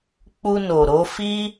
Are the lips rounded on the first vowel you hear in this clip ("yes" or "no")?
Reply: yes